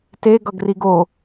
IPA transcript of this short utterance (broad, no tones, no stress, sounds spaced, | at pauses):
t e ɡ ʌ ɡ r i ɡ o